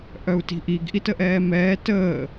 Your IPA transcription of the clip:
ʔ œ u̯ t i̤ ʔ i ɡ ʔ i t ə ʔ ɛː m ɛː t əː

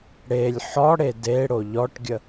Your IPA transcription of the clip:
ɽ e lʲ ħ ɔ ɽ e d e ɽ o ʎ ɔ ʈ ɡʲ ə

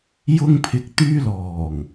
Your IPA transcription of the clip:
j ʊ˧ ŋ pʰ ɪ˨ k̚ t̪ yː˧ l ɔː˨˩ ŋ

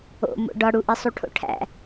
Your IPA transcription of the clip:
o̰ m o̰ ɖ ɒ ɽ u ʔ i sˤ u ʈʰ o̰ ʈʰ æ̰

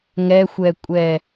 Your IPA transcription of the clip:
ŋ ɛ xʷ ɛ kʷʼ ɛ

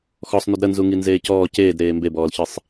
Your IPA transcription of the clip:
x ɔ sˤ n u d ɾ ə n z u ŋ i n z eː c ɔː c eː d ɾ eː m b e b ɔː l ç ɨ sˤ

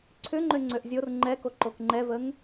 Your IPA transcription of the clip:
ǀʰ ʏ ŋ͡ǃ ø ŋ͡ǀ ø ʔ zʲ o r ŋ͡ǃ ɛ k o ǃ o k ŋ͡ǃ ɛ v ə ŋ

